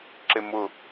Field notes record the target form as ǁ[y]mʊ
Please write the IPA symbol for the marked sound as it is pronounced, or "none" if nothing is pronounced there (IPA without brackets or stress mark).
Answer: e